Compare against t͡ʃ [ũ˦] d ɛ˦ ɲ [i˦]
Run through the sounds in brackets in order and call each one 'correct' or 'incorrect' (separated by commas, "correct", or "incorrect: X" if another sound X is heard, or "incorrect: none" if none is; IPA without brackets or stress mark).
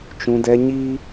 correct, correct